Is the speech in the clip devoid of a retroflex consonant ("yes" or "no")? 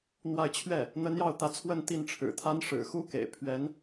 no